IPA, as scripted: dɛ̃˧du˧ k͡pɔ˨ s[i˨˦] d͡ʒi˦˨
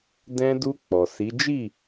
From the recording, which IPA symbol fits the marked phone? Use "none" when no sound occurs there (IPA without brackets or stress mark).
i˨˦